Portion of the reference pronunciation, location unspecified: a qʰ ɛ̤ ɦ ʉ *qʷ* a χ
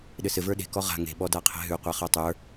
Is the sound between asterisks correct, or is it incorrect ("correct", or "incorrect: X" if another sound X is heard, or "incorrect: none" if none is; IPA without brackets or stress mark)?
correct